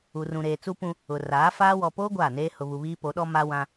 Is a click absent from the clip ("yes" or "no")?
yes